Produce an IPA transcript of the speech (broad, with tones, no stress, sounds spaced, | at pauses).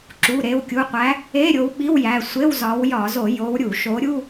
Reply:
ǁ u˩˧˩ ɾ e˩˧˩ w kʲ u˩˧˩ qʷ æ˨˦ | e˧˥˧ ɾʲ o˨˦ w ɓ i˧˥˧ w j æ˩˧˩ sʷ e˧˥˧ w z ɒ˨˦ w j ɒ˧˩˧ z o˧˩˧ j o˨˦ w ɾʲ u˧˩˧ ʃ o˨˦ ɾʲ u˧˥˧